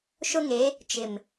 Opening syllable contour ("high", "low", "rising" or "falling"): high